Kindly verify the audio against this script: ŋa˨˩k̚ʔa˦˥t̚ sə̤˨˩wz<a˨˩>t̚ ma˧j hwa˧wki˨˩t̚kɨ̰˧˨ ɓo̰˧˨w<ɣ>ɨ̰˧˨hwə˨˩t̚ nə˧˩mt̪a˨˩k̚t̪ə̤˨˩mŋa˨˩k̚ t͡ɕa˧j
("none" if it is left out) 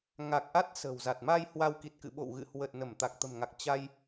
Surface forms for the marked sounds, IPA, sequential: a˨˩, ɣ

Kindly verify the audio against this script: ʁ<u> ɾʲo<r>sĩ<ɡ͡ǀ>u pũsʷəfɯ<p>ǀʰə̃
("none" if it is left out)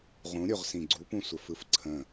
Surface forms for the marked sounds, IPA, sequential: ũ, ʁ, ɡ͡ǀ, f

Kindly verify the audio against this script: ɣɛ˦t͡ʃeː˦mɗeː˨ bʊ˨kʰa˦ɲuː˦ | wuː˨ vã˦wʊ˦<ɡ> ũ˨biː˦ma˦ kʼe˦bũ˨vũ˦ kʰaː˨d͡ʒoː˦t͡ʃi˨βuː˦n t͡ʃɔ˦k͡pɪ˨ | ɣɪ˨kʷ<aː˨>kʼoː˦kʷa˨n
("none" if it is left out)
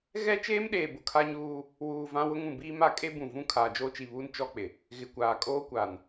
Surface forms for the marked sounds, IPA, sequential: ŋ, aː˨

